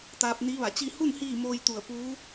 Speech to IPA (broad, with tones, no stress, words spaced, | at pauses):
t̪aː˧p̚ni˧˥ʋa˧˩t͡ɕi˥˨ hu˥˨n hiː˥˨moː˧jt̪u˧˩ə̯ puː˧˥